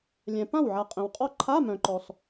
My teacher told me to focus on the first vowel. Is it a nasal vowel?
yes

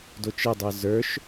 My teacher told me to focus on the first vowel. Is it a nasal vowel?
no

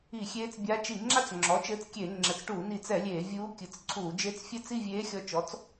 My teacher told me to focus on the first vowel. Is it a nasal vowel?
no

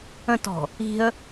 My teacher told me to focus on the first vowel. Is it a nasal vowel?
yes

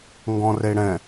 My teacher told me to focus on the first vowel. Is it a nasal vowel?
yes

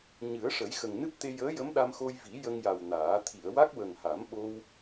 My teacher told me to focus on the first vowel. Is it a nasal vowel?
no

